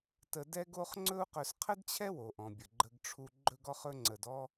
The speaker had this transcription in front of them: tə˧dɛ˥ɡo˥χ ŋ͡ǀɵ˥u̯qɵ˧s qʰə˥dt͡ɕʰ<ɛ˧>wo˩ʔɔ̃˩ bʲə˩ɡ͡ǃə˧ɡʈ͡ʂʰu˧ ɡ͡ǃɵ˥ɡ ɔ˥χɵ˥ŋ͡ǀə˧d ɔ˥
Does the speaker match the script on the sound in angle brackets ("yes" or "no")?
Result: no